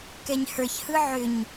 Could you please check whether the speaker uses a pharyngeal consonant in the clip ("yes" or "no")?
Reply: yes